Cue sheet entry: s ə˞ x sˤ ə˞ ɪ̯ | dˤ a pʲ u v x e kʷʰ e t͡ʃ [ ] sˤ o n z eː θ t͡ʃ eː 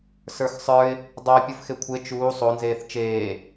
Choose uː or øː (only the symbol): uː